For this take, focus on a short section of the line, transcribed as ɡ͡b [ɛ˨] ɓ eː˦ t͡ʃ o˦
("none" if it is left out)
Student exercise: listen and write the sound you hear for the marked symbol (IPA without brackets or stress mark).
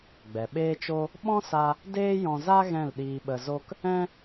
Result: ɛ˨